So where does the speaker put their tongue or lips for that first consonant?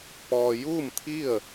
lips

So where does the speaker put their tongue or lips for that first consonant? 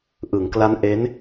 throat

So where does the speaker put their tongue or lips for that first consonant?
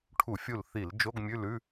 retroflex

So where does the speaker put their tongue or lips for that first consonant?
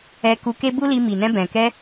velum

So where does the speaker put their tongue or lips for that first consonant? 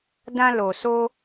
tongue tip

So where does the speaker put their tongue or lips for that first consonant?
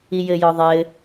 palate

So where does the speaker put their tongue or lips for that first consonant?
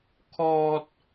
velum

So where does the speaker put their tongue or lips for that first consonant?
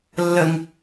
tongue tip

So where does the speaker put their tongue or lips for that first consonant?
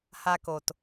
throat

